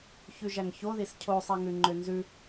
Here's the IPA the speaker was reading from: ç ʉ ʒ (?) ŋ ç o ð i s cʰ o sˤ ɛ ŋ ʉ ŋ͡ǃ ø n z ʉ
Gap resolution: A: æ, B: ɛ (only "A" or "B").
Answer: A